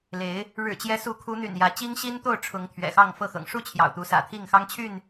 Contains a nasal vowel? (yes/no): no